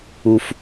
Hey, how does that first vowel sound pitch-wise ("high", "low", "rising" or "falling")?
high